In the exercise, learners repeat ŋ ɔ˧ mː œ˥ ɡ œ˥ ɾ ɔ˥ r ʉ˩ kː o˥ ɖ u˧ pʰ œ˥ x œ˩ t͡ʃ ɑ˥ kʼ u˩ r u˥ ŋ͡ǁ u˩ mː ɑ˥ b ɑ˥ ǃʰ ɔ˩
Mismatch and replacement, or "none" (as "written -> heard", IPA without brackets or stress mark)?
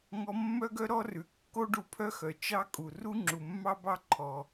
none